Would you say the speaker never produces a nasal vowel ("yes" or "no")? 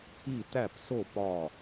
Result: yes